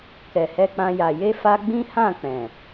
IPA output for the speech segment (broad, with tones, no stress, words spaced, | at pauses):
kɛ˨hɛ˧k͡pã˧ja˨ je˧ fa˦ ɡ͡bĩ˦hã˦˨ k͡pɛ̃˨